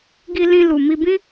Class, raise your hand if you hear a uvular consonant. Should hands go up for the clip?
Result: no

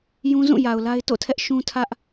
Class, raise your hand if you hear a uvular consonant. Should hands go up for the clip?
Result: no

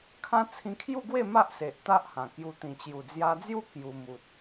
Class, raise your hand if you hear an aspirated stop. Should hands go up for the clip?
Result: yes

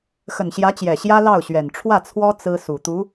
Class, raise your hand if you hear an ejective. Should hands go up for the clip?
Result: no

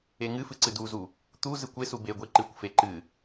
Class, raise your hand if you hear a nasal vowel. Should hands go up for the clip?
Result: no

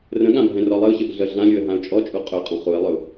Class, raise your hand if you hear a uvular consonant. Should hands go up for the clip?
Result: yes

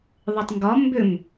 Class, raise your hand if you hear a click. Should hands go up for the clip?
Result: no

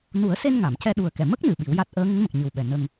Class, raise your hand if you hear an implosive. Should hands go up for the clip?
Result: yes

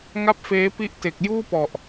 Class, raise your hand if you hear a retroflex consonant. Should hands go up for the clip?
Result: no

